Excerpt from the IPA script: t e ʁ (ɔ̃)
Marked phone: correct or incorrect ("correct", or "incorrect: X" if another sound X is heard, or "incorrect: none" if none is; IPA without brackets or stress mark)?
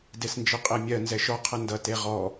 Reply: incorrect: ɔ